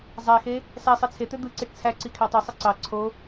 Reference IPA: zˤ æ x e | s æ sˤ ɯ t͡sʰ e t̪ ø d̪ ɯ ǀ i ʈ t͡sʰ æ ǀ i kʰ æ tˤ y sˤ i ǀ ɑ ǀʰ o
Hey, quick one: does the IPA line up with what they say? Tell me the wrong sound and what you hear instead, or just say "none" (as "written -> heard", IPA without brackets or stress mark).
none